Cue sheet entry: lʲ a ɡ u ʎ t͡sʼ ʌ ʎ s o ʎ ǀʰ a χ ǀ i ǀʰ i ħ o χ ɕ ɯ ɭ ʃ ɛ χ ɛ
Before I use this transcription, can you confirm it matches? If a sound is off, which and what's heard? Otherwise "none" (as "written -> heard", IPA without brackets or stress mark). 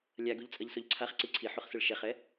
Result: ɕ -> s